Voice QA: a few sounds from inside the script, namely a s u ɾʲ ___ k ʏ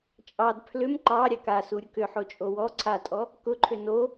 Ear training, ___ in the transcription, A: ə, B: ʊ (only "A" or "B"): B